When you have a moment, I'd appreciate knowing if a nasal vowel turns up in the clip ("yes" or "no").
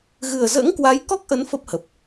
no